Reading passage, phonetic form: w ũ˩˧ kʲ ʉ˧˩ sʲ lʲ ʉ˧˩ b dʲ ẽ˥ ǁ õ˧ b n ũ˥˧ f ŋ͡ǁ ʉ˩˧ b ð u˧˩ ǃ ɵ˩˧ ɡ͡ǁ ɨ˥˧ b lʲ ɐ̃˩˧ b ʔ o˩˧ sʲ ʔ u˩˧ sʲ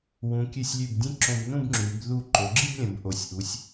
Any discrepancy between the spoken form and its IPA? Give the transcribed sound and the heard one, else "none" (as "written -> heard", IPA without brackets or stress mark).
f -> b